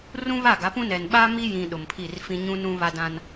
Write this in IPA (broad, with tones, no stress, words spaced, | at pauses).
rũ˦βa˦˨ɡa˨˦pũ˦ nɛ˨nɓa˦ mi˦jĩ˨ ɗʊ˨mpʰi˦˨rfĩ˦ ɲũ˦nũ˦ βa˦dã˦n